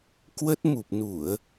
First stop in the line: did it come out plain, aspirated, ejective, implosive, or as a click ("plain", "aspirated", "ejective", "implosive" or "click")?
plain